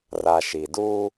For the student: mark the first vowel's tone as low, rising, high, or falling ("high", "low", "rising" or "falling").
low